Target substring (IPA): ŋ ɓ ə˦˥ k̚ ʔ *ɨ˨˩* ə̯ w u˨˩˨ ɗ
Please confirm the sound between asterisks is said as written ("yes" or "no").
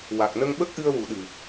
no